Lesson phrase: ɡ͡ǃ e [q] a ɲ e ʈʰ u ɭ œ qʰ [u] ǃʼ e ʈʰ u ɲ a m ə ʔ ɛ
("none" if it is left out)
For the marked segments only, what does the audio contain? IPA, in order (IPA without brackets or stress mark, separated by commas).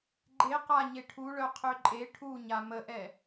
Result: q, ø